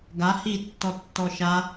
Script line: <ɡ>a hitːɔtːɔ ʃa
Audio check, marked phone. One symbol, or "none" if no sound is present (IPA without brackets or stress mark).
ɡ